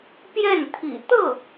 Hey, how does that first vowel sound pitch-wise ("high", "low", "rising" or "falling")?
falling